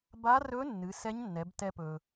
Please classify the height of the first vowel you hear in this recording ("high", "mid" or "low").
low